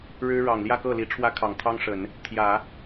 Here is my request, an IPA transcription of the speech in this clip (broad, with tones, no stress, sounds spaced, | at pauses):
ɻ ɻ̩˥ ɻ ɑ˨˩ ŋ l j ä˥˧ k ɤ˥˩ l i˧˥ ʈ͡ʂʰ w ä˥ kʰ ɑ˨˩ ŋ t̪ʰ ɑ˥ ŋ ʂ ə˨˩˦ n | t̪ʰ j ä˨˩˦